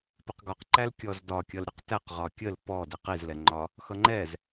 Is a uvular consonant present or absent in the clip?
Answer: present